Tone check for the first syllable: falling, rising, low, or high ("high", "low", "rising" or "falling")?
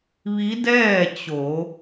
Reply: rising